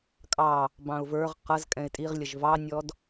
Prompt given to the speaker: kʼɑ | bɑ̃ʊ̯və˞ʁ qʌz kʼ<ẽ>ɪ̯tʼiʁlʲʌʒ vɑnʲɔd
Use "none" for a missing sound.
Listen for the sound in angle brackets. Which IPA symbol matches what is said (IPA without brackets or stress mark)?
ɛ̃